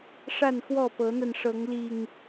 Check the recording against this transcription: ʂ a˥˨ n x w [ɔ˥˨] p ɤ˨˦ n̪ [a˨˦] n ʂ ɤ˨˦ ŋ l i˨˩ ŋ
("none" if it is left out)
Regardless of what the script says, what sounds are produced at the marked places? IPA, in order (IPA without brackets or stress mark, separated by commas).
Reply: ɔ˥˨, a˧